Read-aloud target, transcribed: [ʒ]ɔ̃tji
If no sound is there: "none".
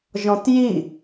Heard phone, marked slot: ʒ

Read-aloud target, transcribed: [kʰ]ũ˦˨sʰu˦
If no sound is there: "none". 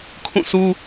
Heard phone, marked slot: kʰ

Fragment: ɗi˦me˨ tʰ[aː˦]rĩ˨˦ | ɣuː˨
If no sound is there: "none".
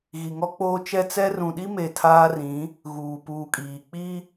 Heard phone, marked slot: aː˦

